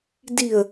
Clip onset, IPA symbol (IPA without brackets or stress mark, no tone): d